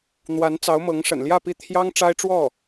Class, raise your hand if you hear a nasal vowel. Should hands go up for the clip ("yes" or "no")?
no